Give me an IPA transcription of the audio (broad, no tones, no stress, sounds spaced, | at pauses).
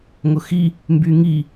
ŋ ʊ x i | m b y ŋ i